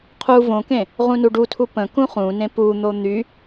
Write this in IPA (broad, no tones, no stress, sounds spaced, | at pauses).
qʰ u v õ k ẽ | ʁ ũ n u ɖ u tʰ u p ə̃ k ũ χ ũ n ẽ p u n̪ o n̪ y